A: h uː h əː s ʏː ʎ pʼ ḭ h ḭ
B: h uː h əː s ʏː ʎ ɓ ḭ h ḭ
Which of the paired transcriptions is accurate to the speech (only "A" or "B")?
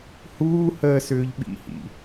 B